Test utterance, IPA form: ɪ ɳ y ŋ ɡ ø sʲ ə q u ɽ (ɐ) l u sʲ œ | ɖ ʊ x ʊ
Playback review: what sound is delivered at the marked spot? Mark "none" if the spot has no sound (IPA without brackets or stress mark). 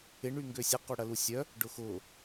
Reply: ɐ